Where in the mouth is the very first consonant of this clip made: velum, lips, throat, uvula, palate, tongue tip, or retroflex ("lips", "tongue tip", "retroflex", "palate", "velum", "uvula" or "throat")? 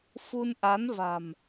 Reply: lips